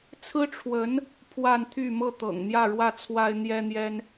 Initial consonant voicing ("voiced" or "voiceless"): voiceless